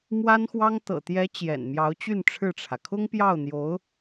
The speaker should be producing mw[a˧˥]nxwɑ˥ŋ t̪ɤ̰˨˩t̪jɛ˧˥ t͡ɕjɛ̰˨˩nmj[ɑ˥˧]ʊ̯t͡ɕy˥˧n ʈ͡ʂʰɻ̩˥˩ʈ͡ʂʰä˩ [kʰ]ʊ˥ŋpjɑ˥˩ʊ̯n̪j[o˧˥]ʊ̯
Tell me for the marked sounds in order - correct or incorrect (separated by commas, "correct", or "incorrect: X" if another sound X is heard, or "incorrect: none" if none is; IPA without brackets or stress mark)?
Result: incorrect: a˥, incorrect: ɑ˧˥, correct, correct